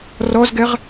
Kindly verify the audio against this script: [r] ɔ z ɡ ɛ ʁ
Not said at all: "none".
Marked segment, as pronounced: r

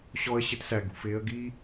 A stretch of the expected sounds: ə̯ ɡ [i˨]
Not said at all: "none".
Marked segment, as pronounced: i˦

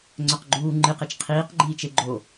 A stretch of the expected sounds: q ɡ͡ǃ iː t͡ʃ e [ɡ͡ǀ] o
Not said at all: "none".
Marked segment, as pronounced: ɡ͡ǃ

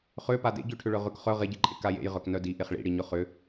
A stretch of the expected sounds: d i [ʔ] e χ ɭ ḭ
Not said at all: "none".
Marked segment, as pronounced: ʔ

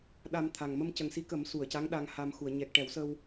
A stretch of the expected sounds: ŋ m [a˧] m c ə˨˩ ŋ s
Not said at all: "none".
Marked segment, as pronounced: ə˧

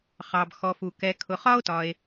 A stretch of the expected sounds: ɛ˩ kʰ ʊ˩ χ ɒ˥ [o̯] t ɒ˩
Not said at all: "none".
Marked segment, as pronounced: o̯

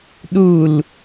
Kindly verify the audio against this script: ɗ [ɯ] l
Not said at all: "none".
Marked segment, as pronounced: u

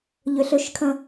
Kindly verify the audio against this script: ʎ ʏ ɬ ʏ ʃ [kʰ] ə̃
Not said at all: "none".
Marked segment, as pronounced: kʰ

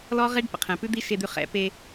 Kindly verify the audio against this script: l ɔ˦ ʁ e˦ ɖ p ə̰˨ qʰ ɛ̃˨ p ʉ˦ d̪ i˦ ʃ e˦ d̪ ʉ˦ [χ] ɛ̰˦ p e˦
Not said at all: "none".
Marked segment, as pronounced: χ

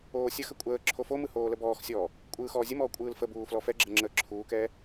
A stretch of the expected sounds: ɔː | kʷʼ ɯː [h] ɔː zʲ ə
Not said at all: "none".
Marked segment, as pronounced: x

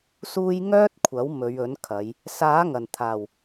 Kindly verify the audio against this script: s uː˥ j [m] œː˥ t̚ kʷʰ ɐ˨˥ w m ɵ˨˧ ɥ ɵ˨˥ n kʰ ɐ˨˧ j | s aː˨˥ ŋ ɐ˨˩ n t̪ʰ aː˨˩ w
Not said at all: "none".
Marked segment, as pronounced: ŋ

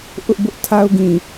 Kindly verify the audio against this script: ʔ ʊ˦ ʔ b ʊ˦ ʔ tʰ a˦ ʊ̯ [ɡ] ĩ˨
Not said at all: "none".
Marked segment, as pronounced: ɡ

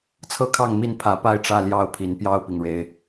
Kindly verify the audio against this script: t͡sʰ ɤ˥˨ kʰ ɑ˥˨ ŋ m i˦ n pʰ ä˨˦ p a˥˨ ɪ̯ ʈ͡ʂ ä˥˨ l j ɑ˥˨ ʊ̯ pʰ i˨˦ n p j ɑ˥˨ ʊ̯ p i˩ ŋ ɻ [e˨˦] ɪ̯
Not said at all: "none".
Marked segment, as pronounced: e˨˦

